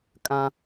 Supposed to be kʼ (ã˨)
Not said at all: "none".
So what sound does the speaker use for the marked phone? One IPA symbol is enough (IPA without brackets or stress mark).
ã˦